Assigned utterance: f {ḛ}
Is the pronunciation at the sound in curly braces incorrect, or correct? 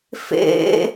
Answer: correct